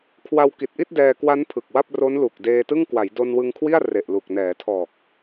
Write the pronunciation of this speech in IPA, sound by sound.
kʰwa˧wki˨˩t̚ʔi˥˩t̚ dɛː˧kwa˦˥n pʰɯ˨˩k̚wa˥˩p̚ro˦˥nlu˨˩k̚ deː˧tɯ˥˩ŋkwa˩˦j do˧nwɯ˧ŋkʰwi˥˩a̯ re˨˩ʔlu˨˩k̚ nɛː˩˦tʰɔː˨˩k̚

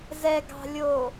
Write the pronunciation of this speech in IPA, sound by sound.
zɛɡɑ̤lʲo

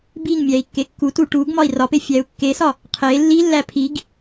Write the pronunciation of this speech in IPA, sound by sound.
biŋ mʲæi̯kːekːutu ʈuɡmɒi̯ rɒpe fʲæu̯kːesɒ | qʰe lːilːæ pʰiɡ

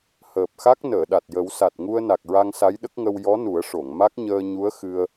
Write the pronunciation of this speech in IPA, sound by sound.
həː˨˩p̚xa˦˥k̚ nəː˨˩˨ɗa˨˩t̚ jə˨˩˦wsa˨˩t̚ŋu˧ə̯ na˨˩k̚ɹa˧ŋ sa˧˥jɗə˦˥k̚ŋə˧w jɔ˧˥ nu˨˩˦ə̯ ʂo˨˩˨ŋma˦˥k̚ ɲəː˧ ɲu˧˥ə̯ xɨ˧ə̯

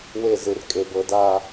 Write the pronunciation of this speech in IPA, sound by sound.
we˧˩ zɯ˩˧rkʼe˩˧bɤ˩˧ da˥˧

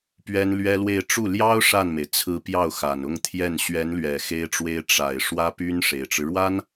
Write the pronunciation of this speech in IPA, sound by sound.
pɥɛ˥nlɥɛ˥lwe˥˧ɪ̯ ʈ͡ʂu˥˩ ljɑ˥ʊ̯ ʂa˥˩nme˩ɪ̯ t͡sʰɹ̩˧˥ pjɑ˥˩ʊ̯xa˨˩nʊ˥˧ŋt̪ʰjɛ˥˩n ɕɥɛ˧˥nlɥɛ˨˩ xe˥ɪ̯ʈ͡ʂwe˥ɪ̯ ʈ͡ʂa˨˩ɪ̯ ʂwä˥py˥nʂe˨˩ɪ̯ʈ͡ʂɻ̩˦ ɻwa˥n

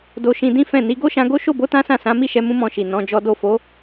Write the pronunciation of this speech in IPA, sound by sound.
do˧ʃĩ˧ dĩ˦fɛ̃˦˨ni˨˦ ɡo˦ʃã˧ɡo˦ ʃo˦˨bo˨˦ tã˦sã˦˨ sã˨˦mi˦˨ʃɛ˧ mũ˦mɔ̃˦˨ʃi˨ nɔ̃˨˦d͡ʒɔ˦ do˦˨ fo˨˦

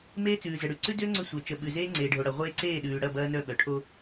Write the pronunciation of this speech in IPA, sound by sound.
meː˦t͡sʉː˨zə˨ɽʉ˨ ǀʉ˦dʏː˦ ŋ͡ǀʏ˦sʷœ˨ t͡ʃə˨ɓʉ˨zeː˦ ŋ͡ǀeː˨ɖʱo˨ɽɐ˨ ʁʷeː˦ǀeː˦˨ ɗʉː˨ɽɐ˦˨ bɐː˦nœ˦ɓœ˨ ʈʰo˦

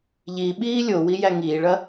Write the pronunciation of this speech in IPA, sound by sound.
ʎiɓiː lʲowi jæŋiːɭɐ

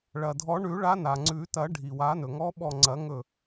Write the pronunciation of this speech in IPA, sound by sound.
ɭɐ˩dʱɔ˨˩˦ɳʉ˨˩˦ ɭa˧˥na˩ŋ͡ǀʉ˨˩˦ tɐ˨˩˦ɖʱi˩wa˨˩˦nɵ˩ ŋɔ˧˥ɓɔ˧˩ŋ͡ǀɐ˨˩˦ŋɵ˧˩

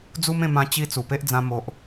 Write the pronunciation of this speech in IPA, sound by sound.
d͡zu˦mẽ˥˧ mã˧t͡ɕi˧ t͡su˨˩pe˦ʔd͡zã˧ mo˨ʔ

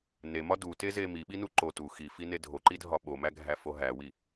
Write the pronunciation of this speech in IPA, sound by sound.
nemɒ duteze miɓinu ǃo tu xifine dʱoǃidʱɒ ɓomæɡʱæfo ɦæwi

